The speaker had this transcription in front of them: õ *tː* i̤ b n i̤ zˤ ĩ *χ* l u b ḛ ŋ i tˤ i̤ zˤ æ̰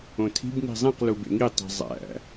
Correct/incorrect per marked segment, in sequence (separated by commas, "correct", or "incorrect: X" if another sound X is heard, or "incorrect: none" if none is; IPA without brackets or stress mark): incorrect: tʰ, incorrect: q